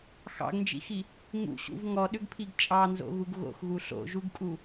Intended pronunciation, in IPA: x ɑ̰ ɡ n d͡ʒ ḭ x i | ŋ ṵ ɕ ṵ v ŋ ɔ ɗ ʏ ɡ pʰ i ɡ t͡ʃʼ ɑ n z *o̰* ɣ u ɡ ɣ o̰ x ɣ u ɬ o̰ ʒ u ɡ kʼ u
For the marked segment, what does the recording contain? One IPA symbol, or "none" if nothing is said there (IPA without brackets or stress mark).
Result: o̰